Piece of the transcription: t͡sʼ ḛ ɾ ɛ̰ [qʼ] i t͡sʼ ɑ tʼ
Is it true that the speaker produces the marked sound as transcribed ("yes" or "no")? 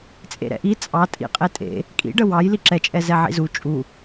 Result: no